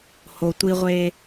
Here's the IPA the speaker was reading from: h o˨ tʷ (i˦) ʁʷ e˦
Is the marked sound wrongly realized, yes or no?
no